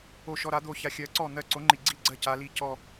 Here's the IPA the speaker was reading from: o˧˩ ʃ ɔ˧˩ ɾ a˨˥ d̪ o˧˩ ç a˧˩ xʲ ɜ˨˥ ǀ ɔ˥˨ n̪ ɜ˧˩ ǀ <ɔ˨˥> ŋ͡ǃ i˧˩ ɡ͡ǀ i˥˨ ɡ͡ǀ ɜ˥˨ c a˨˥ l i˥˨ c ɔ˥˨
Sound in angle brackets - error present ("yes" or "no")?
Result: yes